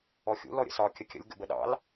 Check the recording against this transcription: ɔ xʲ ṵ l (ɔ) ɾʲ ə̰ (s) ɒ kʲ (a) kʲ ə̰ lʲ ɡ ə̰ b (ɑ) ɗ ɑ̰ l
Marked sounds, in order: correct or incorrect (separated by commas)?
correct, correct, incorrect, incorrect